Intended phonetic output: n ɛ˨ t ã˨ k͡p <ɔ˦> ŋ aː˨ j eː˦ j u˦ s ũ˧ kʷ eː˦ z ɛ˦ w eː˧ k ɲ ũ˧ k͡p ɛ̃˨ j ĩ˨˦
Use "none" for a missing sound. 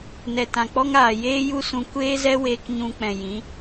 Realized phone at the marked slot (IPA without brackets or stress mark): ɔ˦